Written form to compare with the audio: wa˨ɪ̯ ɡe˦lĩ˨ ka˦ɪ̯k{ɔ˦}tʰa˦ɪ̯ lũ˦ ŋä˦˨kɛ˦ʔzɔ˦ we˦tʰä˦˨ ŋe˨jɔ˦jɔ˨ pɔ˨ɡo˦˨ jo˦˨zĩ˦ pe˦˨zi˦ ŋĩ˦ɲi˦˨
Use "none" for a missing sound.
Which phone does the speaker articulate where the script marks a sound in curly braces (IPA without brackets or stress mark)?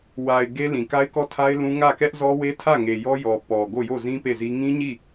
ɔ˦